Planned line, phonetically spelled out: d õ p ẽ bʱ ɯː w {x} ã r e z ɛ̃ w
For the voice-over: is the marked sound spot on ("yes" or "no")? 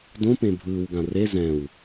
no